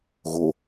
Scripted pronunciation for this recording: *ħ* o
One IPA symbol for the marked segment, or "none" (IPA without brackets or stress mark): ɣ